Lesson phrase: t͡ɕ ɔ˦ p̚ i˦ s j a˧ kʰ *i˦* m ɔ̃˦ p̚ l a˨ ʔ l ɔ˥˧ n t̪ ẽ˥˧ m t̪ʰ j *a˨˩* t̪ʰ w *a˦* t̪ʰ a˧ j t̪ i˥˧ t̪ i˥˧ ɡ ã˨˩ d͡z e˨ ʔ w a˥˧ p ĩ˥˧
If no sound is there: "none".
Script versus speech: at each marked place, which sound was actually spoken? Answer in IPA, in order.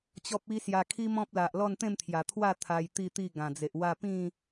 i˦, a˨˩, a˥˧

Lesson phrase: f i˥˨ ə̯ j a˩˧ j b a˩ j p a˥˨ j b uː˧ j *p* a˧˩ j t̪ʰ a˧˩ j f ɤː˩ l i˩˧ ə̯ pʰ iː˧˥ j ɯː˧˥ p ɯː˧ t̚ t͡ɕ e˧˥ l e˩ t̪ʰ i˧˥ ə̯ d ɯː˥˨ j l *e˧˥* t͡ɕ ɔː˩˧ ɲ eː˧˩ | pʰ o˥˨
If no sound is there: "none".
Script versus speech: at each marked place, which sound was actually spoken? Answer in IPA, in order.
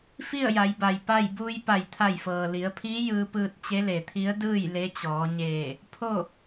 p, e˧˥

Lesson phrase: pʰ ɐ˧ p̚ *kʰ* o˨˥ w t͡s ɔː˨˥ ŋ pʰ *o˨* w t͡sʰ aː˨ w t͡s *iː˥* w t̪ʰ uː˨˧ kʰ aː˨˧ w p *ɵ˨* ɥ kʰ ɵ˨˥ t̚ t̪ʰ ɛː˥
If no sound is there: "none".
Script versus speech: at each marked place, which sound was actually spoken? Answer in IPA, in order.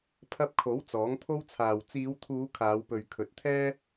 kʰ, o˥, iː˨˧, ɵ˨

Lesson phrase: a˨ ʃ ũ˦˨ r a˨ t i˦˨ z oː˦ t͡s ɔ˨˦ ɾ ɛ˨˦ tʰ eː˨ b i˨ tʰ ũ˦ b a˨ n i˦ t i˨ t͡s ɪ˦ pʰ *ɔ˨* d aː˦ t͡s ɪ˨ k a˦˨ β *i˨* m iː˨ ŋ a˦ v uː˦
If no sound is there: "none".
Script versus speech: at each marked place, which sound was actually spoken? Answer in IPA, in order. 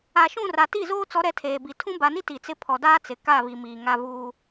ɔ˨, i˨

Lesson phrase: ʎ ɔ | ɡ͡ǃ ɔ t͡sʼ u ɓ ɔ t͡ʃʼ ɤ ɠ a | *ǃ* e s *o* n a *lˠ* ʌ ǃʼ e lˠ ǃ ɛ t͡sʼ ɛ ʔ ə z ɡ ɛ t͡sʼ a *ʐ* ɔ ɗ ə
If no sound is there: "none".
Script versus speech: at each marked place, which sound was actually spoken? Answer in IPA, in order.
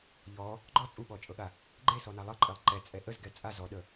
ɡ͡ǃ, ɔ, lˠ, z

